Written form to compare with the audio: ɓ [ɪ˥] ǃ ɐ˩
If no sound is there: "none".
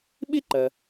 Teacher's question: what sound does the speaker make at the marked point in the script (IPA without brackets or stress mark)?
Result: ɪ˥